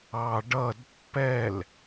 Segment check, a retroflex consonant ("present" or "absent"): present